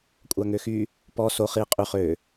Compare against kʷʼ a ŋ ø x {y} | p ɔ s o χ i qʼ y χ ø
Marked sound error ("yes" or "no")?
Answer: no